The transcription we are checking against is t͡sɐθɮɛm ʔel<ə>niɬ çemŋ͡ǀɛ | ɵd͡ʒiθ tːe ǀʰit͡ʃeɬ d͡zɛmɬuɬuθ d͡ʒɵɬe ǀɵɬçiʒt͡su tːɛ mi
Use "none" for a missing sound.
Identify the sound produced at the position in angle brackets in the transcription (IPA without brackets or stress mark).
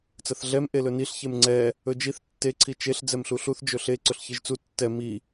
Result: ɵ